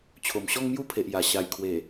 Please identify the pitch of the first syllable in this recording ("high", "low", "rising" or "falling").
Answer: low